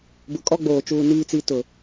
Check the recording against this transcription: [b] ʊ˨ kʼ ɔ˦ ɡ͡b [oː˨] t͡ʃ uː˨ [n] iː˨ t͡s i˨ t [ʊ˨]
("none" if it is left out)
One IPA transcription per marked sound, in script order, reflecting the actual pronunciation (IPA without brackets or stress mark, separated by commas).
b, oː˨, n, ʊ˨